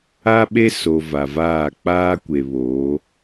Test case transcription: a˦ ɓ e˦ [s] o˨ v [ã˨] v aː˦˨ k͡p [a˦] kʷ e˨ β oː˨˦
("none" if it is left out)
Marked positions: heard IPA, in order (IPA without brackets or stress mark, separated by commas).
s, a˨, aː˦